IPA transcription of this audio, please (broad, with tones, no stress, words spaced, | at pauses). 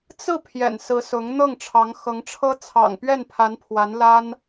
t͡sɹ̩˥˩ pʰjɛ̰˨˩nsɹ̩˧˥sʊ˧˥ŋ n̪ɤ˥˩ŋʈ͡ʂʰɑ˧˥ŋxɤ˧˥ŋʈ͡ʂʰɤ˥ t͡sʰɑ̰˨˩ŋpɥɛ˥˩npʰa˧˥npʰwa˧˥n la˥n